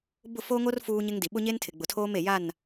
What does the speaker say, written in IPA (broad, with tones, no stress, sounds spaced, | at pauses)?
b ʊ˦˨ f o˦ ŋ o˦ r f uː˦ ɲ ɪ˦ ŋ d i˨ ɓ ʊ˦ ɲ e˦ n tʰ ɪ˨ ɡ͡b ʊ˨ tʰ oː˦ m e˨ j a˦˨ n